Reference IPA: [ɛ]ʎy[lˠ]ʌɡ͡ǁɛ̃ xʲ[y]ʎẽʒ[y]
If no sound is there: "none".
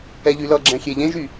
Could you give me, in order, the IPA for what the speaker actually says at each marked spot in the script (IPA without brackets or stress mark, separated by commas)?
ɛ, l, e, y